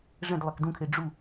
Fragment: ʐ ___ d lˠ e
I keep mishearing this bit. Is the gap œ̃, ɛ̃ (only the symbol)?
ɛ̃